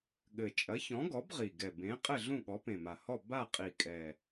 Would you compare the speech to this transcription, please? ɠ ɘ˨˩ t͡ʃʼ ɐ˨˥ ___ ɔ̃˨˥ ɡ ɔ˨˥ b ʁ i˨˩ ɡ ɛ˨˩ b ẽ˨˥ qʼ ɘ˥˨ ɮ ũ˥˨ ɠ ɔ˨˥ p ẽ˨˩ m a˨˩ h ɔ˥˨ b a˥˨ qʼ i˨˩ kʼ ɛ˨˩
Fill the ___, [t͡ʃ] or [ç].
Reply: ç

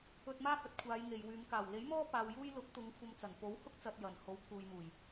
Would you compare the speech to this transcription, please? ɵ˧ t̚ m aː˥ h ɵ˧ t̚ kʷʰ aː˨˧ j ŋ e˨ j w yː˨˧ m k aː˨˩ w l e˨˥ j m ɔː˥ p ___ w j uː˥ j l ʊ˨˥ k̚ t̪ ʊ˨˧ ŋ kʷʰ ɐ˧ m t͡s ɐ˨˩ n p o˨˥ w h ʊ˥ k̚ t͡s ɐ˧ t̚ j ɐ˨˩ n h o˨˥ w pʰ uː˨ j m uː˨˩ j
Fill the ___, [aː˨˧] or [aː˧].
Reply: aː˧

